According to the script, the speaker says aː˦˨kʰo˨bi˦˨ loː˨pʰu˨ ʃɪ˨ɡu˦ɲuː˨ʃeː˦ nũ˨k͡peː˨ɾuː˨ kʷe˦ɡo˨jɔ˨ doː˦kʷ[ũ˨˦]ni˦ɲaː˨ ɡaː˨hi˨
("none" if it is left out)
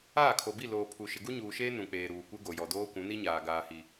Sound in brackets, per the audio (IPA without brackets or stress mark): ũ˨˦